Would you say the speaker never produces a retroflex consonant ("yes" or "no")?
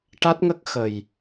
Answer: no